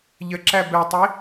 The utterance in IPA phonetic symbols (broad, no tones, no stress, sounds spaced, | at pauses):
ʎ ə ǁ æ b ɛ tˤ i